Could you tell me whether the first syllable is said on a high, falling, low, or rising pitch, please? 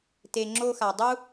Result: low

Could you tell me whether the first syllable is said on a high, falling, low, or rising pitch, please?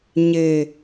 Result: low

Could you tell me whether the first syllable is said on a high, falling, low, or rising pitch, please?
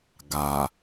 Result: low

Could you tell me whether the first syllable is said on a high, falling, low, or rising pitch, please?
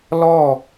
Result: falling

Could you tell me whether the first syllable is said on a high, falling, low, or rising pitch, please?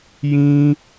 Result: high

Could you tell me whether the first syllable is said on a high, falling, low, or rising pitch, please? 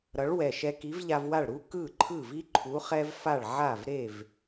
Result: rising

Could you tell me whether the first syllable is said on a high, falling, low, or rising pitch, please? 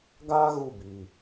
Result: high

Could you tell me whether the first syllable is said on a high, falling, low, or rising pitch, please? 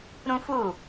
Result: high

